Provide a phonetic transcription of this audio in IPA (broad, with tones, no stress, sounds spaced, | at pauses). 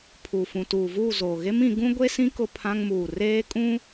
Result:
pʰ u˨ f ũ˨ t uː˨ v uː˦˨ z oː˨ ɣ e˦ m ĩ˨˦ ɡ ũ˦ ɡʷ e˦ s ĩ˦ k ʊ˦ pʰ ã˦ ŋ m uː˨ r eː˦ kʼ ũ˦